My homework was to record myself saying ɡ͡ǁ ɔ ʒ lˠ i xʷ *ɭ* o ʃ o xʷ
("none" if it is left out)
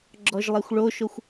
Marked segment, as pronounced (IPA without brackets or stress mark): ɭ